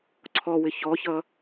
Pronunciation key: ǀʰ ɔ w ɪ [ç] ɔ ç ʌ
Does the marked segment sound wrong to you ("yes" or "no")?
no